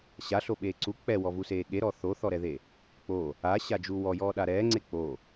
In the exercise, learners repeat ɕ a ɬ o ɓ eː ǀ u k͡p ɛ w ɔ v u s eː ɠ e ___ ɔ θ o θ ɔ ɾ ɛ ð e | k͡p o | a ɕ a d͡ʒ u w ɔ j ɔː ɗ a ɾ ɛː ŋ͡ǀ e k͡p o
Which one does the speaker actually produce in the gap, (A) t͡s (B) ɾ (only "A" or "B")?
B